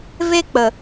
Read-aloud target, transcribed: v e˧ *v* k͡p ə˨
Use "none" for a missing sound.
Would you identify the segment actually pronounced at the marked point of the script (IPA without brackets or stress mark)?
none